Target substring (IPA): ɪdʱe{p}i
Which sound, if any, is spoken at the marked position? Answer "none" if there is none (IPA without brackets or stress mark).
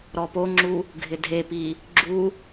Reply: p